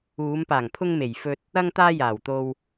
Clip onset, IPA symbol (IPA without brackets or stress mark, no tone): uː